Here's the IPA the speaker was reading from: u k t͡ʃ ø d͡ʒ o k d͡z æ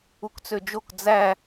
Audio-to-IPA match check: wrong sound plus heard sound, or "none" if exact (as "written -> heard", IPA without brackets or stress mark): t͡ʃ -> t͡s